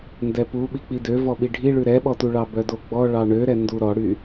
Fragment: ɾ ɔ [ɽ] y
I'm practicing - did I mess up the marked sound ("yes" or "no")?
no